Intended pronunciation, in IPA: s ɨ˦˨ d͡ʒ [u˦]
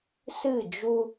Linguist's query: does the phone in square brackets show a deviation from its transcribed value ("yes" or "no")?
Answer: no